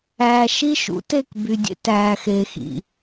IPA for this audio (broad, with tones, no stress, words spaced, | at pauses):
æː˨ʃi˦ʃṵ˨˦te˦˨k by˨dʲḛ˦tæː˨ xe˨xḭ˨